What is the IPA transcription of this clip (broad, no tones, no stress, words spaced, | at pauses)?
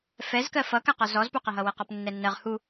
fɛzkɜ fʌkaqɔ zɔzpuqɐɦʌ wɛqɔpnːɛnːɜʁ hu